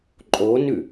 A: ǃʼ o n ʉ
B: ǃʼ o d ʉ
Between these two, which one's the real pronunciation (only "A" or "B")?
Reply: A